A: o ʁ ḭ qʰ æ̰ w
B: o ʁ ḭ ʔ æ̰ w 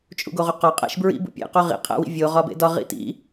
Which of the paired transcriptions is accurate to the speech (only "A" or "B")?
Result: A